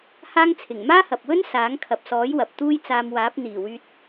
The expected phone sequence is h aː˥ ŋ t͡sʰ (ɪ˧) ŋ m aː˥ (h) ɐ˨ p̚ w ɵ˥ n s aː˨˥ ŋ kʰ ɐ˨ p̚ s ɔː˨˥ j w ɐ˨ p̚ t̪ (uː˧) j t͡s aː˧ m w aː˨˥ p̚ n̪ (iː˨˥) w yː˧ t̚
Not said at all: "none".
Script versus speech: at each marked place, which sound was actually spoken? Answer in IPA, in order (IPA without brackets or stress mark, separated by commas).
ɪ˨˩, h, uː˥, iː˨˩